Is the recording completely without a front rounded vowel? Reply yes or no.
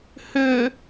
no